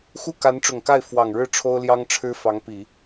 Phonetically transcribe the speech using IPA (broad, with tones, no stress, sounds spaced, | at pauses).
x u˥˩ k a˧˥ n ʈ͡ʂ ʊ˨˩ ŋ k a˥˩ ɪ̯ f w ɑ˨˩ ŋ ɻ ɻ̩˥˩ ʈ͡ʂʰ o˥ ʊ̯ l j ɑ˥ ŋ ʈ͡ʂʰ ɻ̩˥ f ɑ˧˥ ŋ p i˨˩˦